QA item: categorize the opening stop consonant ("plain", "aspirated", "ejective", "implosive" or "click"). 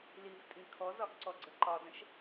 ejective